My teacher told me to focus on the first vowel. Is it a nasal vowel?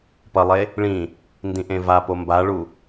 no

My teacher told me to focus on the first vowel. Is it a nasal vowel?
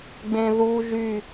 yes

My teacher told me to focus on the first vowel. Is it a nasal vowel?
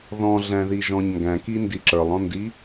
yes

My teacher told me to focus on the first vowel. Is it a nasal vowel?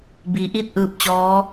no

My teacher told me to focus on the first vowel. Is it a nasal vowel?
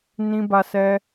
yes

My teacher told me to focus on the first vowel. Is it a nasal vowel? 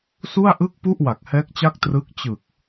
no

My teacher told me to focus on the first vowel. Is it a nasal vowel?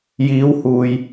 no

